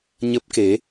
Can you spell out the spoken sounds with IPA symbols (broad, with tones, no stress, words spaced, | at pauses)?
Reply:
ɲə˦˥p̚ke˨˦